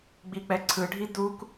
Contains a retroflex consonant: yes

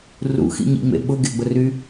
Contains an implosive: yes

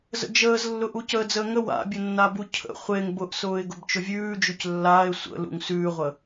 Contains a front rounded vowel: no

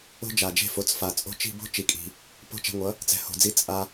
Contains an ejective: yes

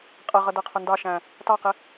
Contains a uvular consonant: yes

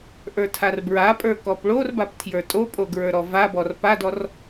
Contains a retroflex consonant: yes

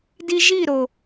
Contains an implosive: no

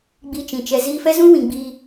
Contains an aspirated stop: no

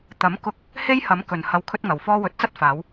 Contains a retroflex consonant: no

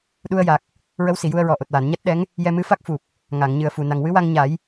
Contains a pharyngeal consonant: no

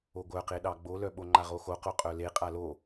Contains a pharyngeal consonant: no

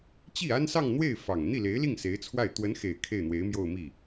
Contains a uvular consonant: no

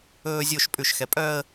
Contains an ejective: yes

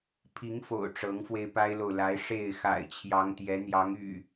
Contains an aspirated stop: yes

